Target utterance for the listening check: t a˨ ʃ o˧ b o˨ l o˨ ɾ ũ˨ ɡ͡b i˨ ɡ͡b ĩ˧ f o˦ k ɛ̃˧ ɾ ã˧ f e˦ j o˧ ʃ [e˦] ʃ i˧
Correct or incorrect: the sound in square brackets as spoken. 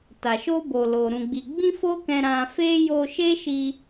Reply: correct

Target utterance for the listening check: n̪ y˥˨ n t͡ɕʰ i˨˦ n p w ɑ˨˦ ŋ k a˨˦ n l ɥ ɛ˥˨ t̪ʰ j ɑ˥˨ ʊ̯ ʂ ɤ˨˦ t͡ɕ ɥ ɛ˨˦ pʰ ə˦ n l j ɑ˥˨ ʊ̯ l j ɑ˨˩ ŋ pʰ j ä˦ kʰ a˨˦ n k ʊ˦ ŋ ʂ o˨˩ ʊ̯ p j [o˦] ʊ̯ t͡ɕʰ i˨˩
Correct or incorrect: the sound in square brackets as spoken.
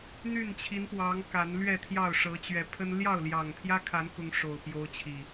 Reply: correct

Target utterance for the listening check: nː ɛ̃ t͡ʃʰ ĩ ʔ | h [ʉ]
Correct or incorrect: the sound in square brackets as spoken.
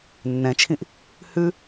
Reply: correct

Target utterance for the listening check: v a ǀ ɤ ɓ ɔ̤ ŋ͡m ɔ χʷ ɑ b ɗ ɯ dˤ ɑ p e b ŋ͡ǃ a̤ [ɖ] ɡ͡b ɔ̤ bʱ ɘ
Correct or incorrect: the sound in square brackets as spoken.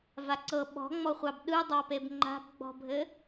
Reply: incorrect: b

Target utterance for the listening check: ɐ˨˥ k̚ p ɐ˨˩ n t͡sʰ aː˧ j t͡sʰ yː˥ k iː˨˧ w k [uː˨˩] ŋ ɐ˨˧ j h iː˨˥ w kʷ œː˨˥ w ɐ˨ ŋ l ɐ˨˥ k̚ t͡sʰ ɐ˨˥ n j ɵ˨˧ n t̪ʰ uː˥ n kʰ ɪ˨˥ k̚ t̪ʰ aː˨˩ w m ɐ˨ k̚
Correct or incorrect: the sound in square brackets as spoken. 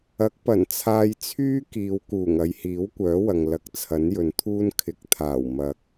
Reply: correct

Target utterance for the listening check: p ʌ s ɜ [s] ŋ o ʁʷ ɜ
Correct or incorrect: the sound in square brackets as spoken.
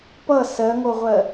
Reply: incorrect: none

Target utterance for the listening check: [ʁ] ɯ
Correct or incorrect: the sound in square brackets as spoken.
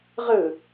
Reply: correct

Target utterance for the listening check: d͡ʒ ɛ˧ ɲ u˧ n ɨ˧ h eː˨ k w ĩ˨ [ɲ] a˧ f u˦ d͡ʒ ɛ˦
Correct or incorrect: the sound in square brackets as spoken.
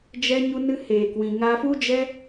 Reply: incorrect: ŋ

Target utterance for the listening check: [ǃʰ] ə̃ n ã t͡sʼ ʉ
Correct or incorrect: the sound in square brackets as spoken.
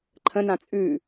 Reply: correct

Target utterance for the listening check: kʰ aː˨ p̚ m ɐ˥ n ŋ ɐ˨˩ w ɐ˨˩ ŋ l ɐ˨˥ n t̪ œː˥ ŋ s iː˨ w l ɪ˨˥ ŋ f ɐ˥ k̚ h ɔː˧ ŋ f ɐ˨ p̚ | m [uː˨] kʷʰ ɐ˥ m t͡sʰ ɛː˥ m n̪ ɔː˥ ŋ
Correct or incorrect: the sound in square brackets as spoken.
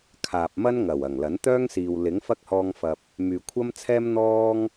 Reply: incorrect: yː˨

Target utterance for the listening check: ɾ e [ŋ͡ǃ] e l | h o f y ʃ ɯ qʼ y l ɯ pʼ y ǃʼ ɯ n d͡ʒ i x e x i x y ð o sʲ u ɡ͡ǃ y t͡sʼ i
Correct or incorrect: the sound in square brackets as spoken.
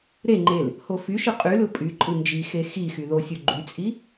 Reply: correct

